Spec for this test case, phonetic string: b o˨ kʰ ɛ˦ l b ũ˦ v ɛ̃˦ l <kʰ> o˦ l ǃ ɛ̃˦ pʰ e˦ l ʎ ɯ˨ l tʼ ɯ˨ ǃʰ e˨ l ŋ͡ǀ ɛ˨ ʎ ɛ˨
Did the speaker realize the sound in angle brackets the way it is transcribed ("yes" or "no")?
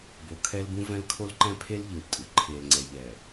yes